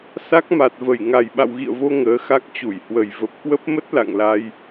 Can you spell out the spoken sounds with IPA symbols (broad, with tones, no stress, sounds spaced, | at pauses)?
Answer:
s a˦˥ k̚ m a˨˩ t̚ v ə˧˩ j ŋ a˨˩ j ɓ a̰˧˨ w ɣ ḭ˧˨ ə̯ v o˧ ŋ əː˨˦ x a˦˥ k̚ t͡ɕ u˧˩ j h w ə˨˩ j v ə˨˩ p̚ k w ə˦˥ p̚ m ə˦˥ t̚ l a̰˧˨ ŋ l a˧ j